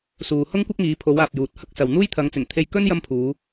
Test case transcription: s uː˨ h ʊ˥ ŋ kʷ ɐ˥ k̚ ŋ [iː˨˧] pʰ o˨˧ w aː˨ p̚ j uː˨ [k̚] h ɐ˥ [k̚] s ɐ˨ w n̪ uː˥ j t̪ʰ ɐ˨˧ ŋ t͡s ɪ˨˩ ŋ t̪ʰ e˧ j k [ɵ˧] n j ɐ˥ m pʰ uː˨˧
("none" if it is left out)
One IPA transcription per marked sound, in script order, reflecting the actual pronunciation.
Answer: iː˨˧, t̚, k̚, ɵ˥

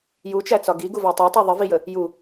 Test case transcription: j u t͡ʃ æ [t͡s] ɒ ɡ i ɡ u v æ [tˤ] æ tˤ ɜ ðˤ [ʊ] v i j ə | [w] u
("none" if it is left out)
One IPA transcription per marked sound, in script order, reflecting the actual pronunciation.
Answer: t͡s, tˤ, ə, j

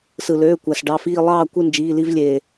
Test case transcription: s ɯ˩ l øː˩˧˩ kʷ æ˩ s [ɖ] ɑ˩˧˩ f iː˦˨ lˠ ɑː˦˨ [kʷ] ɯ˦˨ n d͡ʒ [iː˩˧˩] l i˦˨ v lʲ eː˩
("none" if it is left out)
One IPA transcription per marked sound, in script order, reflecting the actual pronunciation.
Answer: ɖ, kʷ, iː˩˧˩

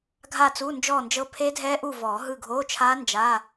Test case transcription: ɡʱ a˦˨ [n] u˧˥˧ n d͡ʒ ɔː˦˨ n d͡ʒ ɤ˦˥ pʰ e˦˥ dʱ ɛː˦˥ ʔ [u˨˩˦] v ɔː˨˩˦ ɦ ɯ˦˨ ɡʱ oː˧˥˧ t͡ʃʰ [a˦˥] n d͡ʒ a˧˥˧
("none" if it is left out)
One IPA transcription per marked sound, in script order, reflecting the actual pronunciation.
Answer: t͡s, u˦˨, aː˦˥

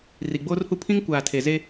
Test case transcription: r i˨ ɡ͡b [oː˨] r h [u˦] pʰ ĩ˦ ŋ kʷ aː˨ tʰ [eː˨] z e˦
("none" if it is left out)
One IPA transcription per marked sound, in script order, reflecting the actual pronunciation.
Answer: oː˦, u˦, e˨

